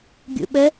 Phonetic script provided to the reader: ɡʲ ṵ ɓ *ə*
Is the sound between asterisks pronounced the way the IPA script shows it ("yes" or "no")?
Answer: yes